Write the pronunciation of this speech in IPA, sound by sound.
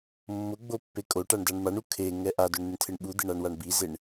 mː ʊ ɡ͡b o pː e kʼ o ʈ a ɳ d a ɳ m a ɳ u kʰ e ŋ ɛ ʔ a d ʊ ɳ n̪ ɪ ɳ tʰ ɪ ɳ ɓ u d̪ ɪ ɳ a ɳ w a ɳ b i z e ɳ

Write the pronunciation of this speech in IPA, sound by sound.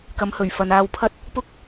k ɐ˨˧ m h ɵ˨˩ ɥ f ɐ˨ n aː˧ w pʰ ɐ˥ t̚ | p ʊ˥ k̚

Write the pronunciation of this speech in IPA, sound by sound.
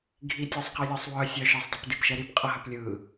ɡʱ i tʲ œ sˤ q i lʲ ɒ sˤ w œ sʲ œ ʃ ɯ sˤ dˤ ɛ p d i p ʃ ɛ ɾ i p qʼ ʌ ɦ œ p lʲ ɯ

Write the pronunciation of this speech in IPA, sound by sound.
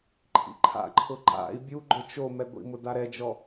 ǃʰ ḭ ǃʰ a̰ ǃʰ ʊ ǃ a̰ i̯ bʲ u ɡ͡ǃ ʊ t͡ʃ o m ɛ ɡʷ ḭ m ʊ d a ɾ ɛ d͡ʒ ɔ

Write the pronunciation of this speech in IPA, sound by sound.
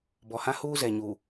b ɔ˨ h ã˦ h uː˦ z ɛ˨ ɲ uː˨

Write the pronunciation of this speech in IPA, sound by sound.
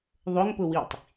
ðˤ ʊ ŋ p ʊ w i tˤ

